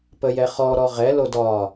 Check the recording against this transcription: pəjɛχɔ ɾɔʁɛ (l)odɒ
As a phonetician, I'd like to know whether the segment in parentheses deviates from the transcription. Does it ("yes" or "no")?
no